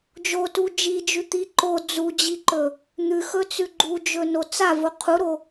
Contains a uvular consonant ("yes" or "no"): yes